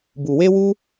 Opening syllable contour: low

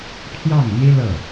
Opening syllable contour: falling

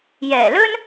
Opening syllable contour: low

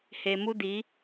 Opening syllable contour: low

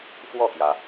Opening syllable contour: falling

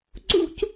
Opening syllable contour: high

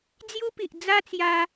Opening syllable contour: high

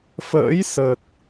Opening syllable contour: rising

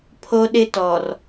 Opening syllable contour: high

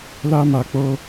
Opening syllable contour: high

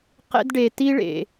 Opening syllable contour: high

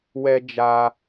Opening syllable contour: high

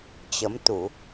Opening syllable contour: rising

